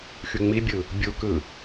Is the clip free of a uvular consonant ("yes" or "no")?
yes